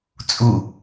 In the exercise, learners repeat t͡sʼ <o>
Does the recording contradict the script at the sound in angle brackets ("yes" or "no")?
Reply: yes